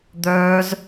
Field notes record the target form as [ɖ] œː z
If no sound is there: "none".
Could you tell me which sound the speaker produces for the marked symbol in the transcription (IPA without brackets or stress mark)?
d̪